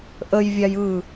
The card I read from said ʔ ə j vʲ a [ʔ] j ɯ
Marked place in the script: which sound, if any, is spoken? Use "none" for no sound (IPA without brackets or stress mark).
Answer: none